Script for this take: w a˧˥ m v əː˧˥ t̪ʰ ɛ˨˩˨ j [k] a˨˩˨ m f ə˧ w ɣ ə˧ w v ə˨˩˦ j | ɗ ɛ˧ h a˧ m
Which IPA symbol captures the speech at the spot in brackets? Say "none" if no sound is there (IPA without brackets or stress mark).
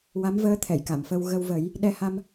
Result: k